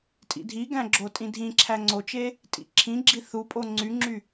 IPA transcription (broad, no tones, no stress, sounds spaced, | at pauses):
tʼ ḭ dʱ i ɡ æ̃ ɡ͡ǁ o tʼ ĩ dʱ ĩ ǁʰ æ ŋ͡ǀ o t͡ʃ e | tʼ ḭ ǁʰ ĩ ɡ͡ǁ i θ u pʼ o ŋ͡ǀ y ŋ͡ǁ y